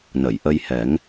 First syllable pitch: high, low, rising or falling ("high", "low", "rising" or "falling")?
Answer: low